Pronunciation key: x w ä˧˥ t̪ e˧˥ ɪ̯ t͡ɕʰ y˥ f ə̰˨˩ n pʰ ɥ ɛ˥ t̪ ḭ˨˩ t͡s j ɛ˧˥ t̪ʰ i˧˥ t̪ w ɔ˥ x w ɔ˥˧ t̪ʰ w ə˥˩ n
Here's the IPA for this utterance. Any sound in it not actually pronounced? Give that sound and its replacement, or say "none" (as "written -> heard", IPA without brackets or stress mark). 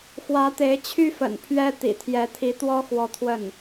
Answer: t͡s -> t̪ʰ